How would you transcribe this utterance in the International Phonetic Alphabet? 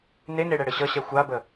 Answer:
neneɽɛ ɽɘɕʌɕɛ xʷabə

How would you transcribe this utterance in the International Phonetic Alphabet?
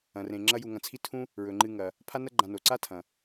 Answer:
ɐ̃˩rẽ˩ ŋ͡ǁɐ˦ju˨ŋɐ̃˨t͡sʰi˥ tʰũ˦ | ɹɵ˩ŋ͡ǃɨ˨ŋɐ˩ | pʰa˦nɐ˦ɡ͡ǃã˨no˩ ǀa˦tʰɐ̃˩

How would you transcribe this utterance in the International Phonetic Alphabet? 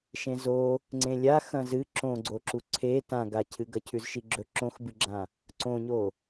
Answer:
ʃẽzo | ŋ͡ǀẽlʲa xɐ̃zɨ ǁõɡ͡ǀo ǁuǀʰe tãɡacʰɨ ɡɐcʰʉzʃiɡ͡ǁɵ ǁõxbɨɡ͡ǁã | ǀõɲo

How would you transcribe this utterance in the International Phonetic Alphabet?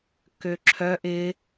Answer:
køǁʰœʔ ɪ

